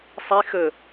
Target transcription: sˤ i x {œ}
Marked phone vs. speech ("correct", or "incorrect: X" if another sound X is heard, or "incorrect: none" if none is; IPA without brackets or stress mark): incorrect: ə